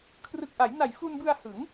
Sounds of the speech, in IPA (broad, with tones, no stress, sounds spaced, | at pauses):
kʰ r ɯ˨˩ k̚ ʔ a˩˦ j n a˨˩ j f u˧ n b ɯ˧ a̯ h ɯ˩˦ ŋ